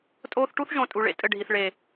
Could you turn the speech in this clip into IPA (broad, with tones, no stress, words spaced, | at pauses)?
tʼoː˦θ ʈu˦θʒõ˨ tʼu˨ɭḛ˧ tʼɘ˦˨ɖʱi˨θ ɭe˨